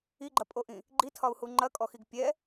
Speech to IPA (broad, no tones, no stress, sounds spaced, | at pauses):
i ɡ͡ǃ ɐ pʼ o ʔ ĩ | ɡ͡ǃ i tʰ ɒ u̯ h u ŋ͡ǃ ɐ kʼ ɔ x i ɡ pʲ ɛ